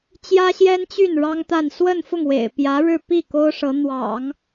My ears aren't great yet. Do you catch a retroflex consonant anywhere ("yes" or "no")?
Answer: yes